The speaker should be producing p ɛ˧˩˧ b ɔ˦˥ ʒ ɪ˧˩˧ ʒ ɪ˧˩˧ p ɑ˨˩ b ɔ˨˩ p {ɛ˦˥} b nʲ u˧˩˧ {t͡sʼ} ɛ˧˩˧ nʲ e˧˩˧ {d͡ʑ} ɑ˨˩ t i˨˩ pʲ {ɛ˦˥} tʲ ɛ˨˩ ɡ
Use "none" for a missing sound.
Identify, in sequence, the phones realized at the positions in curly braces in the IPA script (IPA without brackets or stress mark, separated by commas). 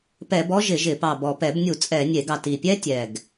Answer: ɛ˧˩˧, t͡sʼ, ɡ, ɛ˦˥